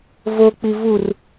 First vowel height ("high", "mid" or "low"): mid